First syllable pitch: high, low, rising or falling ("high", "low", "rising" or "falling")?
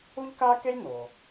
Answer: high